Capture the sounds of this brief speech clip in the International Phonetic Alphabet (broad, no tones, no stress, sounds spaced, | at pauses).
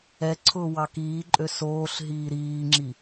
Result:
ɛ ǀʰ ʊː w ɑ k iː ǃʼ ø s oː ɬ ɦ iː ɾ iː ŋ͡ǁ i